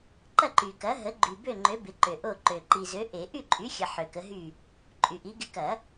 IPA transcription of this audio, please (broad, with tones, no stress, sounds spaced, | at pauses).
ǃ ɐ˥˨ ǃ y˨ k ɐ˨˥ ɦ ə˨˥ ɡ͡ǃ y˨ b ø˥˨ ŋ͡ǃ ø˨˥ b ɪ˨˥ ǃ ø˨ ʔ o˥˨ ǃ ø˨ ǃ i˨ z ø˨˥ ʔ e˨˩˦ ʔ y˥˨ ǃʼ y˨˥ xʲ ə˨ ħ ø˨ k ə˨˥ ɦ y˥˨ | ǃʼ y˨ ʔ i˨˥ ɡ ɪ˨˥ k ɐ˨˩˦